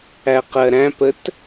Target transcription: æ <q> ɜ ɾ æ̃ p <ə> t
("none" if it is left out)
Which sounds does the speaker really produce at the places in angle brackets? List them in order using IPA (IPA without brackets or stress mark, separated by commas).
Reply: q, ə